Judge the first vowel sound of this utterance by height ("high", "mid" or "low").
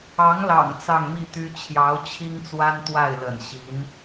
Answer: low